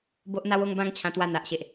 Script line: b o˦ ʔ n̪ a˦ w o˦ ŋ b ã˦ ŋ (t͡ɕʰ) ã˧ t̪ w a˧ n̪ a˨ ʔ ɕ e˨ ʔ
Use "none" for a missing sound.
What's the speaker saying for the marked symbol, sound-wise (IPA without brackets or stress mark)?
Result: t͡ɕʰ